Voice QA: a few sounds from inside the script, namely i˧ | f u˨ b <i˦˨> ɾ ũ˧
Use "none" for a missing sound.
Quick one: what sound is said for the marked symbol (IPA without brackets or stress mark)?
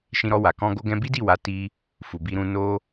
i˧